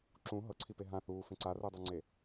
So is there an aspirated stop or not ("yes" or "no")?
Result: yes